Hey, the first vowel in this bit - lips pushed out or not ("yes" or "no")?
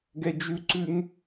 no